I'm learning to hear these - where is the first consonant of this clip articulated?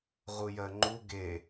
uvula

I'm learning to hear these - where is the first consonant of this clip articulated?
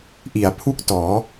throat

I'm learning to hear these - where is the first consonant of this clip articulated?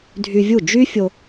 tongue tip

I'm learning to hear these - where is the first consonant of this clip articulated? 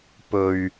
lips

